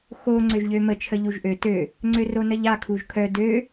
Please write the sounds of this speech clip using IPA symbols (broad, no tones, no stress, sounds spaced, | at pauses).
x o ŋ͡ǀ ø ʒ ʎ ø m ə t͡ʃʰ ə ʎ u ʒ ʔ ø t ø | ŋ͡ǀ ø r o n ə ʎ a kʰ u ʒ kʰ œ d ø